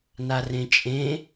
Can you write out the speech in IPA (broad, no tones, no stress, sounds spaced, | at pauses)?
n a r ẽ t͡ʃʼ ẽ